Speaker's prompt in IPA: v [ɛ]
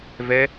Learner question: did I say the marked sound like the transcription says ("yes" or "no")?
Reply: yes